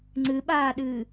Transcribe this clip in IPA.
ŋ͡ǀ ɨ ɓ aː ɗ ɨː

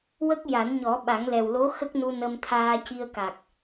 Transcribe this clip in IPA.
w ə˦˥ k̚ j a˨˩˦ n ɲ ɔ˨˩˦ ɓ a˨˩˦ ŋ l ɛ˨˩ w l o˧˥ x ə˦˥ k̚ n u˧ n ə˧ m t̪ʰ aː˧ c i˧ ə̯ k a˨˩ k̚

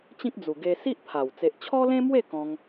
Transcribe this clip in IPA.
t͡ɕ ĩ˦ k̚ d͡z u˨˩ ɡ e˧ s i˦ ʔ pʰ a˨˩ w t͡s e˨ ʔ t͡ɕʰ ɔ˦ l ẽ˦ m w e˥˧ k ɔ̃˦ ŋ

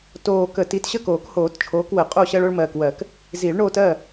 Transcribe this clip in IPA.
t oː˨˩ k ə˨˩˦ t i˨˦ t ɕ ə˥˩ k oː˨˩˦ k h oː˨˩˦ t t͡ʃʰ oː˨˦ k w ə˨˩˦ qʼ o˥˩ ɕ ɜ˦ ɭ o˦ ɭ m ɜː˨˩ k w ɜ˨˩˦ k | z i˨˩˦ ɭ ɳ oː˦ t ɜ˥˩

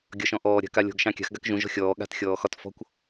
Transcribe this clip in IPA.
ɡʲ ɒ ʃ ɔ̃ ʔ ɔː ɾʲ a̤ k a lʲ ɔ̤ ɡ ʃ ɑ̃ kʲ a̤ x ɡ a k ʒ ũ ʒ ɔ̤ xʲ ɔː ɠ a̤ t xʲ ɔː x ɒ t f ɔ̤ kʷ

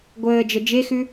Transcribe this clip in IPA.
ɡʷ əː d͡ʒ ə d͡ʒ e x ʉ

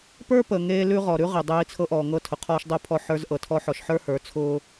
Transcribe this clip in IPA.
p ə˞˦ p ə˨ ŋ eː˦ l ʉ˦ ʁ ɔ˨ ɾ ʉ˦ ʁ e˨ dˤ eː˦ i̯ t͡sʰ ɤ˦ ʔ ɔː˨ ŋ ɤ˦ tʰ ʊ˨ qʰ ɔː˦ ʃ dˤ ʊː˦ pʰ ɔ˦˨ ħ ə˞˦ z ʔ ɤ˨ tʰ ɔ˦ ħ ɔ˨ ʃ ħ ə˞˦ h ə˞˨ t͡sʰ ʊː˦

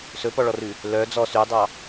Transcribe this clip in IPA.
s ɵ p ɔ ɭ ɔ r ʉ | l œ d͡z ɔ s y dˤ ɑ

